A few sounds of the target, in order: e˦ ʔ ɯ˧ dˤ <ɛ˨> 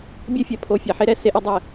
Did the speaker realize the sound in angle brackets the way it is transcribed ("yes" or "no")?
no